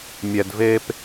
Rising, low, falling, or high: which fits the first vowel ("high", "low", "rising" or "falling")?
low